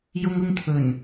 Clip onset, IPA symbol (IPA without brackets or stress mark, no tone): j